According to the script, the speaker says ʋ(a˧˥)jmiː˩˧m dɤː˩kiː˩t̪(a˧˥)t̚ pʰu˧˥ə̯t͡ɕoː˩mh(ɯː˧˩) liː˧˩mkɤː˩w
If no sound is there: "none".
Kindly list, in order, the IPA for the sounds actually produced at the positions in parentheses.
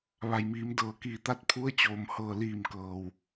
a˩, a˧˥, ɤː˧˩

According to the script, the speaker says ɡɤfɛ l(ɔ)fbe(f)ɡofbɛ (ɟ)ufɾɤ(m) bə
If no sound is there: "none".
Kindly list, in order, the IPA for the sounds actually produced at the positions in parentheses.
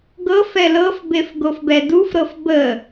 ɤ, f, d, f

